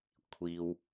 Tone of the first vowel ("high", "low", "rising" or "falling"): low